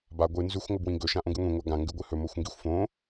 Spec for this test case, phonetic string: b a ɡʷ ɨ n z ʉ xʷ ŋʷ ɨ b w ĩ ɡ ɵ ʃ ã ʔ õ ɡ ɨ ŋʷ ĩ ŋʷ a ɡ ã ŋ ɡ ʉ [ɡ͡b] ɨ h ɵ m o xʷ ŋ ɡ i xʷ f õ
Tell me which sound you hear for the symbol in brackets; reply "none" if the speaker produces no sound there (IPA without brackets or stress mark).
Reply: ɡʷ